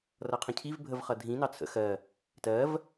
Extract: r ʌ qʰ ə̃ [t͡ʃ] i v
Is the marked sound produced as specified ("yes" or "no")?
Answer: no